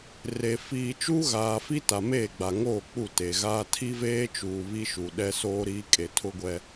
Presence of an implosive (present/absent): present